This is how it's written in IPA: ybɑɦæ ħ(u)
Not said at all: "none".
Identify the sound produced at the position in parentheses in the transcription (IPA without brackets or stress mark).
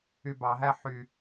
y